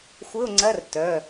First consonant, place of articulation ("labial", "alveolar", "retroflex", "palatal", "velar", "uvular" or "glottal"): velar